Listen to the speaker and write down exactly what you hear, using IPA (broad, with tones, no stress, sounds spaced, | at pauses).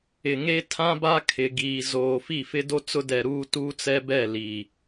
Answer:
ɪ˨ ŋ e˦ tʰ ã˦ b a˦ kʰ ɪ˨ ɡ iː˨ z oː˨ f i˦˨ f ɪ˦ d o˦ t͡s ʊ˦ d ɛ˨ ɾ uː˦ t uː˦ t͡s ɛ˦ b ɛ˦˨ l i˨